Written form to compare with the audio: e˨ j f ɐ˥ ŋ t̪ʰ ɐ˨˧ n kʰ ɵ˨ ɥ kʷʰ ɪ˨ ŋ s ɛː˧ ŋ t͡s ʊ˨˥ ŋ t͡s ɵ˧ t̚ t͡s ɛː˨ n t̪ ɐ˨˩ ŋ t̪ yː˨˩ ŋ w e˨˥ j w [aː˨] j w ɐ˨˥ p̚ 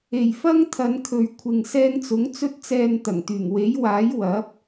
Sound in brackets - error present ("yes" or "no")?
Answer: yes